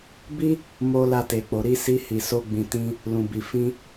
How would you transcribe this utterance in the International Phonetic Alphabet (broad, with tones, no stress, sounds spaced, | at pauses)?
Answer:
b i˦ | m o˧ l a˧ t e˨ k͡p o˨ ɾ i˧ s i˧ h i˨ s o˧ ɡ͡b ĩ˨ t ĩ˧ | l ũ˨ b i˨ f ĩ˧